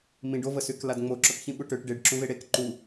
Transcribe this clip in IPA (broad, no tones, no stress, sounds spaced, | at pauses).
m ĩ ɖ o v ə s y k l a d ŋ͡m o ǁ ɔ k ç ĩ ɓ u ʈ ø ʈ ɖ e ɖ ǁ ũ v e ɽ e k ǃ u